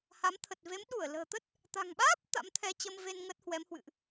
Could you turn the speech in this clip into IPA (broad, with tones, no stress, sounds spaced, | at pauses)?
h a˨˦ m t̪ʰ ə˨˩ t̚ v e˨˦ m ɗ u˧˩ ə̯ l ə̤ː˨˩ t̪ ə˦˥ t̚ | t̪ a̤˨˩ ŋ ɓ aː˦˥ p̚ t̪ a̰˧˥ m t̪ʰ ɛ˧ t͡ɕ ə˧ m v e˧ n ŋ ə˦˥ t̚ h w ɛ˨˦ m h w ɨ̰˧˨ ʔ